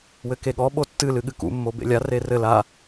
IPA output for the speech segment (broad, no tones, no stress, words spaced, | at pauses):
wɘkeɠɔ ɓotːɨ lɨɠɨkṵ mːobḛlʲa rerɘ la